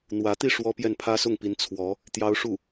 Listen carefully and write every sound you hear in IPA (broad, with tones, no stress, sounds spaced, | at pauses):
n̪ w ä˧˥ t̪ i˥˩ ʂ w ɔ˥ p j ɛ˥˩ n pʰ ä˥ s ʊ˥˩ ŋ p i˧˥ n t͡sʰ w ɔ˧˥ | t̪ j ɑ˥ ʊ̯ ʂ u˥˩